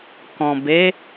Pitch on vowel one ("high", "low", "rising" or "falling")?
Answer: low